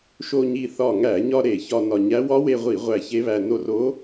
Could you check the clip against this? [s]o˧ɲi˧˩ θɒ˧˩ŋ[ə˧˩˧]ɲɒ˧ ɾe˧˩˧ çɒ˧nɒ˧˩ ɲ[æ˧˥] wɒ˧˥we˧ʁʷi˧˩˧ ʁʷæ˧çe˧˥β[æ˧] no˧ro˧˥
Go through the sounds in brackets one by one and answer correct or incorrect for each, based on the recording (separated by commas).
incorrect, incorrect, correct, correct